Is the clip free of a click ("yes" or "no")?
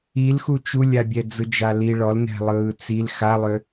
yes